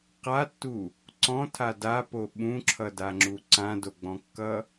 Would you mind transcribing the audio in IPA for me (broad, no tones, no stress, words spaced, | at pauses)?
qatːu | ǀɔ̃tʰa dapo ɓũǁʰʌdaŋ͡ǁu ǀãdoɡ͡bɔ̃kːʌ